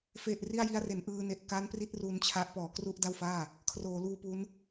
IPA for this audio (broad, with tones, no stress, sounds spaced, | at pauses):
f e˨˩ ʔ r i˥˩ a̯ j i˦˥ a̯ r e˩˦ n ʔ ɯː˧ n e˨˩ ʔ k a˦˥ n p r i˦˥ t̚ r u˦˥ n t͡ɕʰ a˦˥ ʔ p ɔː˩˦ k r u˥˩ ʔ d a˥˩ w f aː˥˩ | kʰ r oː˩˦ l uː˧ p u˦˥ n